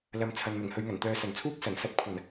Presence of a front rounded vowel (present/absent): present